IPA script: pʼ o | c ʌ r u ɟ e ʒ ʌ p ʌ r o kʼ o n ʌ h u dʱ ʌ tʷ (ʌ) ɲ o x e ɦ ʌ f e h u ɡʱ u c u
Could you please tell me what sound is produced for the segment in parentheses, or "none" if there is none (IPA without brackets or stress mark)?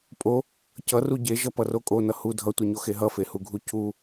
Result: ʌ